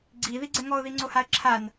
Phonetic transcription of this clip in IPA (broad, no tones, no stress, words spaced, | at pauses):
ɡ͡ǀiðiɡ͡ǀɛ ŋɔʊ̯ðiŋ͡ǀohaə̯ ǁʰan